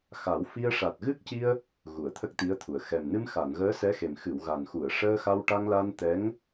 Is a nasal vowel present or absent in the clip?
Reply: absent